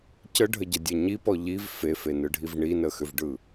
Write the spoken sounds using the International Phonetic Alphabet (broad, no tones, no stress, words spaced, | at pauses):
cəɖʱəɟədʲɐ ɲipɔ ʎiv fefenɯɖʱiv ɳinəxʏvɖɯ